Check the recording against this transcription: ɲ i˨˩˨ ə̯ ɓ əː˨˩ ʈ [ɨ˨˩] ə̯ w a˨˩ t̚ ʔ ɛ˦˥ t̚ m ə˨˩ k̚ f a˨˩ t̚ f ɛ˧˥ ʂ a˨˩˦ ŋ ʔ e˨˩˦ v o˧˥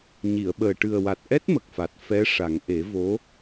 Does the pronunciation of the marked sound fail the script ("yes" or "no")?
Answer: no